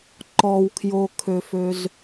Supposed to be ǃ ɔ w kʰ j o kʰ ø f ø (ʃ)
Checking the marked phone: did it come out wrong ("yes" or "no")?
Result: yes